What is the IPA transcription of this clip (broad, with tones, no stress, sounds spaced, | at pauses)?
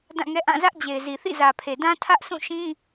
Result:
d ã˦˨ ŋ ɛ˦ ʔ ã˦˨ z ä˦ ʔ d͡ʑ e˨ ɪ̯ z i˨ θ ḭ˦˨ z ä˨ pʰ e˨ d ã˦ tʰ ä˦ ʔ s ũ˦˨ ʃ ĩ˦